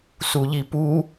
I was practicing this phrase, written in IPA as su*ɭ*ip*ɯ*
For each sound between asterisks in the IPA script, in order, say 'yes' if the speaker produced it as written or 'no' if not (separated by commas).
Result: no, no